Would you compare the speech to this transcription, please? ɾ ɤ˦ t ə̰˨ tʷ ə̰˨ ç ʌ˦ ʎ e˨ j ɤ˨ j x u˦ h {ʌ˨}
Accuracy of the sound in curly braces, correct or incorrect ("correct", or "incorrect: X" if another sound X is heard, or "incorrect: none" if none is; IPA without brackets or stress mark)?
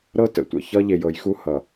correct